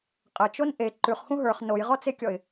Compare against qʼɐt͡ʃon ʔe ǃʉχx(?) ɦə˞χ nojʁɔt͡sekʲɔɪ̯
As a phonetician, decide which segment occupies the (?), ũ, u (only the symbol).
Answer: ũ